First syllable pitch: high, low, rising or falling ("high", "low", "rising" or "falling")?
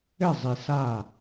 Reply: falling